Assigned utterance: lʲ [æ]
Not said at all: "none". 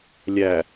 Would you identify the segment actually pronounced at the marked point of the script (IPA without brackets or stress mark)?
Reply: æ